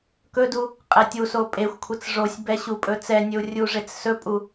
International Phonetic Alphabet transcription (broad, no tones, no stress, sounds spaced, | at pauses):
k ɵ d u | qʼ ɛ tʲ u s o pʼ e xʷ kʷʰ ɛ t͡s ʐ o sʲ b ɛ ɕ u pʼ ɵ t͡s ɛ nʲ ɵ u̯ rʲ u ʐ e t͡s s ɵ pʼ u